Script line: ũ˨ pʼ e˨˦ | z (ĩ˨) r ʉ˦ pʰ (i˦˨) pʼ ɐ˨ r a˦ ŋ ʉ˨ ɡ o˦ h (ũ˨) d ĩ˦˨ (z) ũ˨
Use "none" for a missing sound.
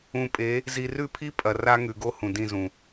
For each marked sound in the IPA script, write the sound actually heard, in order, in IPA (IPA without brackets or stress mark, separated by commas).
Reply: i˨, i˦, ũ˨, z